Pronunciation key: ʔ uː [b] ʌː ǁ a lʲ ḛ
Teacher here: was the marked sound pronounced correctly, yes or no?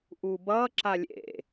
yes